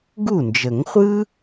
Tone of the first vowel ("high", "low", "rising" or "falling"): falling